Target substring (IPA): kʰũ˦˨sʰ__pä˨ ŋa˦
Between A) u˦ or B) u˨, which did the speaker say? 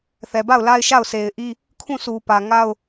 B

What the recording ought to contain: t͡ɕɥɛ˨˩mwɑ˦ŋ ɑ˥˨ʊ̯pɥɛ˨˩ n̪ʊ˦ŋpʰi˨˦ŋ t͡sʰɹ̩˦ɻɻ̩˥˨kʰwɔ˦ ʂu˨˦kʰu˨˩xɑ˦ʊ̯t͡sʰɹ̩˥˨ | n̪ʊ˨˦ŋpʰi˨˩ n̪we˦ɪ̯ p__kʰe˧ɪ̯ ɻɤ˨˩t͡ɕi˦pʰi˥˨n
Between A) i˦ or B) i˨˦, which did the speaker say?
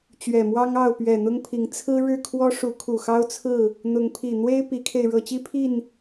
B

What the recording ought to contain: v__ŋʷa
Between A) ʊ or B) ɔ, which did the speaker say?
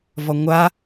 B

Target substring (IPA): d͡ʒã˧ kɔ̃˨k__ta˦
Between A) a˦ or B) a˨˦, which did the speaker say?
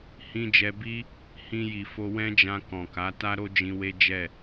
B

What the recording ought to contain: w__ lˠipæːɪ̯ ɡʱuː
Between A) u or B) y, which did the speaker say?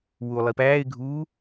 A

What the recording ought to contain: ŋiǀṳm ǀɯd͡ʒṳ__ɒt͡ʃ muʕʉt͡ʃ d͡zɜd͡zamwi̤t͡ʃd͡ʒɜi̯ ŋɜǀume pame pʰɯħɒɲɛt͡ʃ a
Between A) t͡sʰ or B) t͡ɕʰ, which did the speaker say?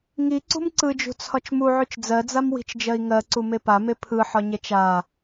A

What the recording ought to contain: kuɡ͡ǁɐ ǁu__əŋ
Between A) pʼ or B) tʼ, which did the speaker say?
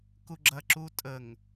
B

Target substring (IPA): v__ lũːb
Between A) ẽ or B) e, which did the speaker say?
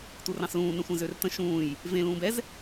A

